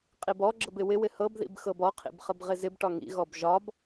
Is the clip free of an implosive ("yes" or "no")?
yes